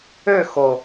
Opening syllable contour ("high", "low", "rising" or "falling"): falling